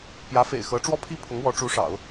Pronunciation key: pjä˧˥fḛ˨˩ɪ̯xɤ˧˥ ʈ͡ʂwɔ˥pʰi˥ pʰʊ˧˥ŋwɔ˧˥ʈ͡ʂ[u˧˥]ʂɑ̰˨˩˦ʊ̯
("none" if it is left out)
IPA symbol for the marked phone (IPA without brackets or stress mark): u˧˥